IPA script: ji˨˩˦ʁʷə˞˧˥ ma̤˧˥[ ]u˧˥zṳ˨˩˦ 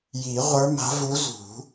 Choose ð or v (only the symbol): v